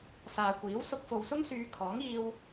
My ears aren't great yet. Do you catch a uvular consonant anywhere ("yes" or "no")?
no